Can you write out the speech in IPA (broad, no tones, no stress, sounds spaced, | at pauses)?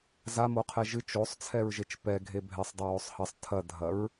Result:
z a m o qʰ ɛ ʒ ɨ t͡ʃ o sˤ t͡sʰ ɛ ɹ ʒ e t͡ʃ p ɛ ɡʱ e bʱ ɛ sˤ dˤ o w o sˤ h ɐ sˤ tʰ ɐ dʱ ɐ ɹ